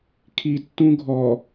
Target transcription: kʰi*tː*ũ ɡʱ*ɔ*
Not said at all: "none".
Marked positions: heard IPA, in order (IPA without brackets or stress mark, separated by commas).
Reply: tː, ɔ